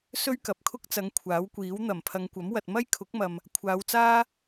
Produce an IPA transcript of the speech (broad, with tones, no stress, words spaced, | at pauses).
sɵ˥ɥkɐ˨˥p̚kʰʊ˥k̚t͡sɐ˨˧ŋ kʷʰaː˨˥wkʷiː˨˥w n̪ɐ˨˩mpʰɐ˨˧ŋkʷɐ˨˥mwɐ˨t̚ mɐ˥jkʰʊ˨˥k̚mɐ˨m | kʷʰaː˨˧wt͡saː˥